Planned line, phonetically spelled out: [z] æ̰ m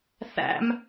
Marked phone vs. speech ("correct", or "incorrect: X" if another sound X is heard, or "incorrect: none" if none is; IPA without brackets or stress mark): incorrect: θ